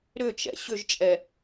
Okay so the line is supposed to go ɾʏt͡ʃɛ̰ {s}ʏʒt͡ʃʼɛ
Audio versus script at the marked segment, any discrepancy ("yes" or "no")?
yes